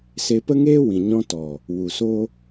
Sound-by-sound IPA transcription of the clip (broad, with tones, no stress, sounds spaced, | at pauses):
s e˧ p ə˦ ŋ eː˦ w ĩ˨ ɲ ɔ̃˧ t ɔ˨ | w u˨ s o˦